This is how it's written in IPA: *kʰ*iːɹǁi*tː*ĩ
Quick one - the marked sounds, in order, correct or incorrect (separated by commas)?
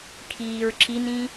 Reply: correct, incorrect